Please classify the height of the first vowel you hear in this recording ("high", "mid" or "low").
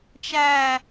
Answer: low